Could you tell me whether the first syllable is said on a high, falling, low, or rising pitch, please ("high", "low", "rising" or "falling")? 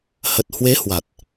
low